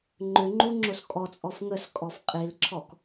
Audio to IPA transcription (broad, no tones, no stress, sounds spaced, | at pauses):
ŋ͡ǃ ʏ ŋ͡ǃ u ŋ͡ǁ o s kʼ ɔ t͡sʼ ɔ f ŋ ə s kʼ ɔ f qʼ i l ǁʰ ɔ k